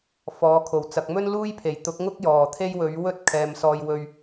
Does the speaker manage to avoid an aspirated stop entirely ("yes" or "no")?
no